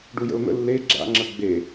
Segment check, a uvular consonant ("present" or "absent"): absent